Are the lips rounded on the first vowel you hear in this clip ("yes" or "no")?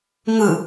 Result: no